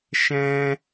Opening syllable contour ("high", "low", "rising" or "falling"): high